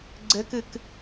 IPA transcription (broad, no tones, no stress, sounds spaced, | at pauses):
ɡ͡ǀ ɘ k ɨ k